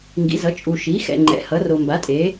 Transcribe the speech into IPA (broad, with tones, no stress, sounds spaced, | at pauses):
ŋ ɡ ḭ˩˥ z ʌ˩˥ t͡ʃʼ u˨ ʃ i˩˥ x ɛ̰˨ ŋ͡ǃ ɛ̰˩˥ h ʌ˩˥ r o˨ m b a˩˥ tʼ e˩˥